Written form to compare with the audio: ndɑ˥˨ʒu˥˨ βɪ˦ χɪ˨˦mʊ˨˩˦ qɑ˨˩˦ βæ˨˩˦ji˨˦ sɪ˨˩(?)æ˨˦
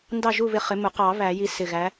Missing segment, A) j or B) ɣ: B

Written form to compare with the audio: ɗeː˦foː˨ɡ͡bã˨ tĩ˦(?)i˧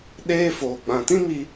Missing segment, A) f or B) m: B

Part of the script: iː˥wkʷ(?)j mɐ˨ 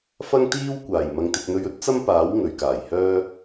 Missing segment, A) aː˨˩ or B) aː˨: A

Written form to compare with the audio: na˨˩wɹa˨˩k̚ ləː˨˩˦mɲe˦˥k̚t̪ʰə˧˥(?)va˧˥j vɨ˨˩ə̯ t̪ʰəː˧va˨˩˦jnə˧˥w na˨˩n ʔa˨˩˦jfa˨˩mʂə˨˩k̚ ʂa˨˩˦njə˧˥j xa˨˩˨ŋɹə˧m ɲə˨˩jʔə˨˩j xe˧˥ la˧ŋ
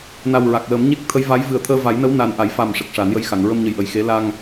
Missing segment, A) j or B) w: A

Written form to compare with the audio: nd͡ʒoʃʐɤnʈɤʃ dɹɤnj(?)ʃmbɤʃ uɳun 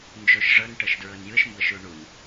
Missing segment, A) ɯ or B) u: A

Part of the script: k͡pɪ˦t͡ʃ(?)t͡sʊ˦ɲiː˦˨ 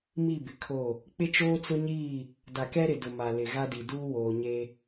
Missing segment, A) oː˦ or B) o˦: A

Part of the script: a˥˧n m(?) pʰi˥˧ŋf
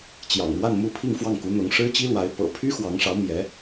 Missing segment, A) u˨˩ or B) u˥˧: B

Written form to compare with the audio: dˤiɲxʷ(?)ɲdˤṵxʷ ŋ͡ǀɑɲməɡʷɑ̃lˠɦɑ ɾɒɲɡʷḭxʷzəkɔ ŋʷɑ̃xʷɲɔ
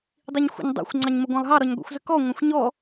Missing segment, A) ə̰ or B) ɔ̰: A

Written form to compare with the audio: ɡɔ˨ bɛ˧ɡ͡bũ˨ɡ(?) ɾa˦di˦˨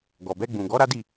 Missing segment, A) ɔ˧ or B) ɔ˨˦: B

